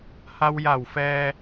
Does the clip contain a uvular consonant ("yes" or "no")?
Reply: no